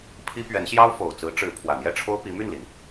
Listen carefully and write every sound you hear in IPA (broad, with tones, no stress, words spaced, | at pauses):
pʰi˥ pɥɛ˧˥nɕjɑ˥ʊ̯ fo˨˩ʊ̯t͡sɹ̩˧˥ʈ͡ʂɻ̩˧˥ pʰwä˨˩n̪jɛ˥˩ʈ͡ʂʰo˥ʊ̯ pi˧˥my˥˩nli˩n